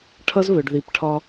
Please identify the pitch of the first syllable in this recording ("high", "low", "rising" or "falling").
high